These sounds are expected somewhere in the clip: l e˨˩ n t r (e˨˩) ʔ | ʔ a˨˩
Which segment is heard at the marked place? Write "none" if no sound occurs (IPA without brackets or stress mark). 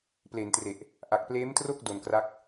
e˨˩